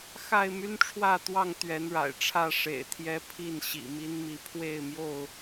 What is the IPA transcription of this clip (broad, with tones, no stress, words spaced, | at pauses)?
xa˥˨ɪ̯my˦nʈ͡ʂʰwä˥˨t̪wɑ˥˨ŋ t̪ɥɛ˨˦nɻa̰˨˩ɪ̯ʈ͡ʂʰä˥˨ ʂḛ˨˩ɪ̯t̪ʰjɛ˦pʰi˥˨n ɕḭ˨˩mi˦nmi˨˦ pʰwe˥˨ɪ̯mjo˥˨ʊ̯